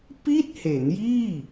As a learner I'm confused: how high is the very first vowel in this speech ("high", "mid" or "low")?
high